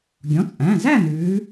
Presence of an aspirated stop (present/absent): absent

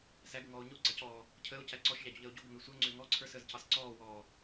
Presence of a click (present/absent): present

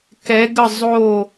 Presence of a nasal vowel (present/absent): absent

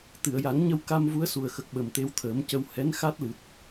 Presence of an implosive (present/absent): present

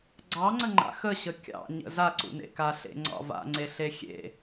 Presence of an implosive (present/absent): absent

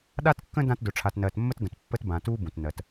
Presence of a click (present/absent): absent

